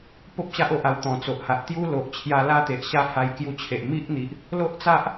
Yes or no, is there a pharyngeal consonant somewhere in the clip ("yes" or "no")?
no